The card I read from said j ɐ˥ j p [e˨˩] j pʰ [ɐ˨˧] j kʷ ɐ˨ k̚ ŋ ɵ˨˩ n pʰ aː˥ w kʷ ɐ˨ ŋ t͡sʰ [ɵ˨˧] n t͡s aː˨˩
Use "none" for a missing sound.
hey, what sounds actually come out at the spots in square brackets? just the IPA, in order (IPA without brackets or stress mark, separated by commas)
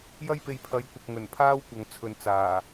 e˨, ɐ˨˧, ɵ˨